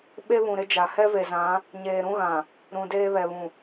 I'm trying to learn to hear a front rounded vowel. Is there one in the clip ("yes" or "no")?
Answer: no